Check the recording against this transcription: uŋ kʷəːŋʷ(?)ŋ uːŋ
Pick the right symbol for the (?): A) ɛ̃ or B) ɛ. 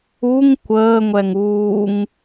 B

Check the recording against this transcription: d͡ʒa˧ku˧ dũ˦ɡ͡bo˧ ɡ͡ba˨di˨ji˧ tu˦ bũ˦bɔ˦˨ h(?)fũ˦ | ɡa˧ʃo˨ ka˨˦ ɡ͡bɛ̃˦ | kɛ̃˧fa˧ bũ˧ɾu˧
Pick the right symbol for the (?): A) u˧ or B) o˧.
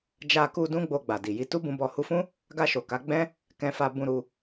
A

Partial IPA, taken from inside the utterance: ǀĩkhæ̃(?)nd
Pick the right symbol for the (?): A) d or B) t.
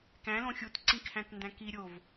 B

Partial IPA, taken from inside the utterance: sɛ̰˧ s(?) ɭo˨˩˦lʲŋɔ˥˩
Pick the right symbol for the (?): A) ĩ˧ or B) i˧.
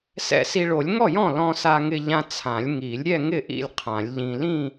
B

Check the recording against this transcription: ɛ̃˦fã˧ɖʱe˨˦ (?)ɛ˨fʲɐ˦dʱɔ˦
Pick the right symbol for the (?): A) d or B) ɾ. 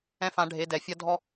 A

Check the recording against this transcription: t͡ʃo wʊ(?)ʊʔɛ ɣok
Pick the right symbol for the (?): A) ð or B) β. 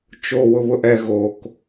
B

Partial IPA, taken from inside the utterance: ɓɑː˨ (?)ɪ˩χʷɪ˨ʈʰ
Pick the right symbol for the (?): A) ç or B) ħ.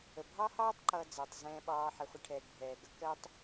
B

